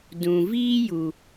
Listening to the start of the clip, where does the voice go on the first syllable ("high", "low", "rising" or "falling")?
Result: low